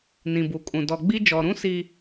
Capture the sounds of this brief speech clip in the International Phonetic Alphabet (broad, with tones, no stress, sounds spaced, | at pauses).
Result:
n ĩ˨ b u˨ kʼ ũ˨ d ɔ˨ ɡ͡b i˦ d͡ʒ ɔ˨ ɾ ũ˦ s i˦